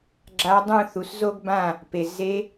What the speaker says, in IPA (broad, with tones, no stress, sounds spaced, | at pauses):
ɡ͡ǁ a˧˥ dˤ ũ˥˨ θ u˩˥ s z o˥ ɡ b ã˥˨ | p e˨ z e˧˥